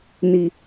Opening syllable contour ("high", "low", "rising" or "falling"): high